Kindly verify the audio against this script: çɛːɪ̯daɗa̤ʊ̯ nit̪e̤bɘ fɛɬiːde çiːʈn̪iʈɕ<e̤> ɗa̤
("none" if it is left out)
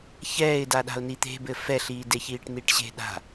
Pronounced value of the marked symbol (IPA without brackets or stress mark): e̤